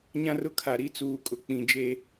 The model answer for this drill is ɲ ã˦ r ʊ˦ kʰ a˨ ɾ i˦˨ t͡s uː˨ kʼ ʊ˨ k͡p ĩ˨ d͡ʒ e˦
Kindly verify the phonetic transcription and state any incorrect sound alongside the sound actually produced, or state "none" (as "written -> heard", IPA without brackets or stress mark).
none